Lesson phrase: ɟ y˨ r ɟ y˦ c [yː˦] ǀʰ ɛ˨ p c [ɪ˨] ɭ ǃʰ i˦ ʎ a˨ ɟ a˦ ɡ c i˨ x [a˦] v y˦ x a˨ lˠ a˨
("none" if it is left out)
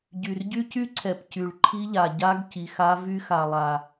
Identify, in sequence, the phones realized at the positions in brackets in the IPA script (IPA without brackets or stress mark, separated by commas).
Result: y˦, y˨, a˦